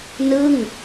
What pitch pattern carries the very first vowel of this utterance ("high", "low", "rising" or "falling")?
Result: falling